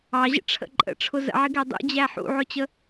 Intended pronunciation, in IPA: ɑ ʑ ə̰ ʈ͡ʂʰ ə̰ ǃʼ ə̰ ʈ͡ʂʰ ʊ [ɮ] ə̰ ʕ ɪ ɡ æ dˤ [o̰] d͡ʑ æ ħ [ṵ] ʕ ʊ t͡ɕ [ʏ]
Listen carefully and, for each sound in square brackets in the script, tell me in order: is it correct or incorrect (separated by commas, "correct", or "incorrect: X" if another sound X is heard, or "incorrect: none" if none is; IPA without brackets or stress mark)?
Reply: incorrect: z, incorrect: ṵ, correct, incorrect: ə